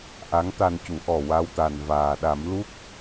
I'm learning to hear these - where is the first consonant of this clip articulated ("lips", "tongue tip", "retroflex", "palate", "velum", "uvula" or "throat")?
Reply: throat